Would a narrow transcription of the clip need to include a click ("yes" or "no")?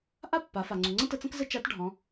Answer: yes